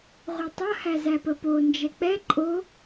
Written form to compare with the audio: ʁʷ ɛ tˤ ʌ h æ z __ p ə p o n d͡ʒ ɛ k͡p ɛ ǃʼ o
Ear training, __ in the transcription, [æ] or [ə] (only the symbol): æ